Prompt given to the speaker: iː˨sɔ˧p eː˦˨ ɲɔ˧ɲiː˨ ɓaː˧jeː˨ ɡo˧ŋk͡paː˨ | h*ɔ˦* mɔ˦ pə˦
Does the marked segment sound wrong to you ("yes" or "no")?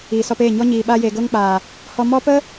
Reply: yes